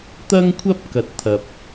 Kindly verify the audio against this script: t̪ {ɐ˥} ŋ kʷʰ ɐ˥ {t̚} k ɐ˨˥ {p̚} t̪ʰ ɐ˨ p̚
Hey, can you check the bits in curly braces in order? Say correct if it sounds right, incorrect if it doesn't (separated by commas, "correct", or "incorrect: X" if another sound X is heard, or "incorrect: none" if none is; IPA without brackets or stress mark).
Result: correct, incorrect: p̚, incorrect: t̚